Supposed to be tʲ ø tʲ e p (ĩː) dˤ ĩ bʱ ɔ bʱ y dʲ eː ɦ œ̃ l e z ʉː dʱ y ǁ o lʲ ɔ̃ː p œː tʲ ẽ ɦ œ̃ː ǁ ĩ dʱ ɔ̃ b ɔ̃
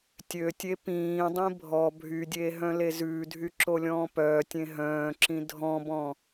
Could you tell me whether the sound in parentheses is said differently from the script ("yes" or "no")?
no